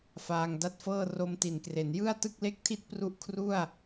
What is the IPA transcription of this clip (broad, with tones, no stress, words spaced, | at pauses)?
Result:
faː˧ŋda˦˥t̚fɤː˥˩ ro˧mti˩˦nkre˩˦n jɯ˥˩a̯tɯ˥˩k̚le˥˩k̚tʰi˥˩t̚ pru˥˩ʔkʰru˥˩a̯